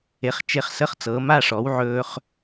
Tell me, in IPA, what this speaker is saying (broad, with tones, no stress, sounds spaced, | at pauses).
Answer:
e˩˥ χ t͡ʃ e˧ χ s ə˧˥˧ χ t͡s ɤ˩˥ m a˧˥˧ ʂ ɔ˩˥ w ʕ ɵː˧ χ